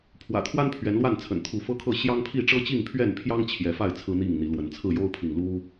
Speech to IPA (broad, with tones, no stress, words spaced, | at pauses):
pʰwä̰˨˩t̪ʰwa˦n pʰɥɛ˨˦nlwa˥˨nt͡sʰə̰˨˩n t̪ʰu˨˦fɤ˦kʰɤ˥˨ ɕjɑ˦ŋpʰi˥˨ ʈ͡ʂɤ˦t͡ɕi˥˨ŋpʰɥɛ˥˨npʰjɑ˦ŋ t͡ɕʰjɛ˨˦fa˥˨ɪ̯ t͡sʰɹ̩˦n̪i˥˨ŋn̪i˨˦lwə˨˦n t͡sʰɹ̩˥˨jo˦ʊ̯pʰi˨ŋ lu˦